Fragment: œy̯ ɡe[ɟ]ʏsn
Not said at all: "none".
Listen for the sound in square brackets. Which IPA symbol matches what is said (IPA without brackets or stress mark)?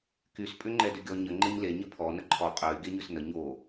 ɲ